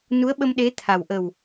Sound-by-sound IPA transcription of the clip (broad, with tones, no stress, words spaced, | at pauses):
nu˧˥ə̯ɓə˧m ɗe˧˥ t̪ʰa˨˩w ʔə˨˩w